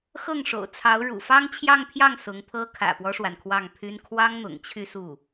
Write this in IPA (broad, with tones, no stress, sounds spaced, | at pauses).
x ɤ˥˩ ŋ ʂ o̰˨˩ ʊ̯ t͡sʰ ɑ˧˥ ʊ̯ ɻ ṵ˨˩ f ɑ˥ ŋ t͡ɕʰ j ɑ˥˧ ŋ pʰ j ɑ˥˩ ŋ s ʊ˧˥ ŋ pʰ ɤ˥ kʰ ä̰˨˩ p w ɔ˦ ʂ w a˩ n kʰ w ɑ˥˩ ŋ pʰ y˥ n kʰ w ɑ˥ ŋ n̪ ʊ̰˨˩ ŋ t͡ɕʰ y˥˧ s u˥˩